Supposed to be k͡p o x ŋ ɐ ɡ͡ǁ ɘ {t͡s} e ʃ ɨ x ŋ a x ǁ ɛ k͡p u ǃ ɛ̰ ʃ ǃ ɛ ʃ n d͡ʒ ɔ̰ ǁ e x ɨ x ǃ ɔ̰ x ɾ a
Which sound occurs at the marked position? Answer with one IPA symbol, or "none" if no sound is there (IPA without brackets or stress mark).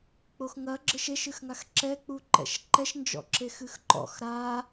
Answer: ʃ